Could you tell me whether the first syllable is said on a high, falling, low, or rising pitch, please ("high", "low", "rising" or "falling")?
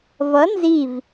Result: rising